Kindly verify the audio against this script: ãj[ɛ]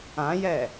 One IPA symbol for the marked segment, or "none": ɛ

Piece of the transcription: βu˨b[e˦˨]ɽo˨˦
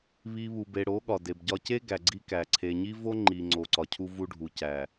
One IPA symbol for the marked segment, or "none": e˨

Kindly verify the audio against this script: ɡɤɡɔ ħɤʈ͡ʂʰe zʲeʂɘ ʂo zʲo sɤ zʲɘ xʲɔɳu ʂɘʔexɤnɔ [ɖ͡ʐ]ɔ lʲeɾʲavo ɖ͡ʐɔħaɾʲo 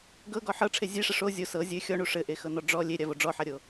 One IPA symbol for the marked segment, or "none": ɖ͡ʐ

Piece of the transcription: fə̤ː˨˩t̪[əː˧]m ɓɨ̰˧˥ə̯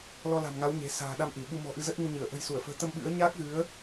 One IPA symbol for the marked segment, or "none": ə˧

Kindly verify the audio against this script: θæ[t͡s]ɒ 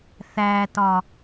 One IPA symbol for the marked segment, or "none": t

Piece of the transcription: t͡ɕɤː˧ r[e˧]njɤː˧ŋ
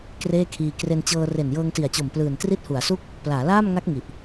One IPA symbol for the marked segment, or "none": e˨˩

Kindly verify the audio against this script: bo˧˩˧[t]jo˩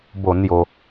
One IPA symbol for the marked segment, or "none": n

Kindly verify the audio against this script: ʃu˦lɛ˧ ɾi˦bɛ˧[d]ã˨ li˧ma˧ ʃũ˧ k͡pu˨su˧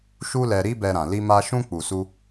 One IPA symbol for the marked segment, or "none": ɾ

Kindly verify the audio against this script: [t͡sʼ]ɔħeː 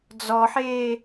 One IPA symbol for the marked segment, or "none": d͡z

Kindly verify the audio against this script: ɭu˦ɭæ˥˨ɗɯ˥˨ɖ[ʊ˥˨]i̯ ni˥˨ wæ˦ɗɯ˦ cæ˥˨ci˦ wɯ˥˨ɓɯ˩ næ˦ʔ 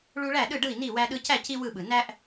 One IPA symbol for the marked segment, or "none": ɯ˥˨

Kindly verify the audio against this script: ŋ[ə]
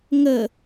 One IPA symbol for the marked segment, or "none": ə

